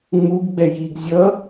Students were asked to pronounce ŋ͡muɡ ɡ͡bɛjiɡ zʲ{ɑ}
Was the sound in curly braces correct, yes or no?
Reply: no